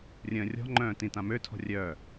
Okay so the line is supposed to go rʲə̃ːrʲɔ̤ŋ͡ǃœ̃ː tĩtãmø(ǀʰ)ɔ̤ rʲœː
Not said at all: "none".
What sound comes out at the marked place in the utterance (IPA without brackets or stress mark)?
tʰ